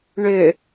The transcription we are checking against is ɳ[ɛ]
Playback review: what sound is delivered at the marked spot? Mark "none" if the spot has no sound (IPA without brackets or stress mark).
ʏ